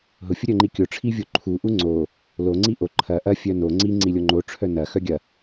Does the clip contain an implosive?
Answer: no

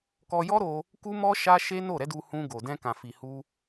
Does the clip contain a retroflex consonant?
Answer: no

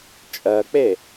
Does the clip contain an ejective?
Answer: yes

